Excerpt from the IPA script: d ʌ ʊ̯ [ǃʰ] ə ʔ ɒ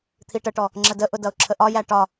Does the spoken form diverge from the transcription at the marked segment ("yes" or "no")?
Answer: yes